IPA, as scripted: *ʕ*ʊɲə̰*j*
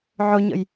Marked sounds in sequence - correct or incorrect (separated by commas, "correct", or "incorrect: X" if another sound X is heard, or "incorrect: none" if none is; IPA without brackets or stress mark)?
correct, correct